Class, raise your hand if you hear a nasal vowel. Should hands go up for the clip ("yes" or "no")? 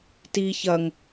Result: no